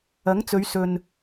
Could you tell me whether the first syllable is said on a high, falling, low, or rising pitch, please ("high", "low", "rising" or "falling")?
rising